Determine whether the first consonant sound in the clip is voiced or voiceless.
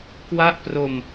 voiceless